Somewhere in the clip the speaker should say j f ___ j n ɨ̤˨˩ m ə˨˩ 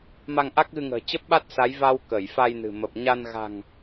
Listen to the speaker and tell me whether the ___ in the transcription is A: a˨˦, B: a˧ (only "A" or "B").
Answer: B